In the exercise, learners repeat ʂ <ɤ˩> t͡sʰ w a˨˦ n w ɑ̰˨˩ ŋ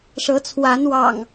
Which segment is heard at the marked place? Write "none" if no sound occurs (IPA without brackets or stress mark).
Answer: ɤ˨˦